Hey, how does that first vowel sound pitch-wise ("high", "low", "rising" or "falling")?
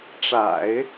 low